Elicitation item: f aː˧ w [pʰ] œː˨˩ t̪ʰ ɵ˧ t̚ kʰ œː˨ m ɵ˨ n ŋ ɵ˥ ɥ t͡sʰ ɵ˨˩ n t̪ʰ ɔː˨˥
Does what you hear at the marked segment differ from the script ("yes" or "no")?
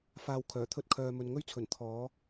yes